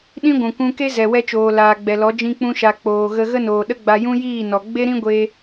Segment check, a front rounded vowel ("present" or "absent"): absent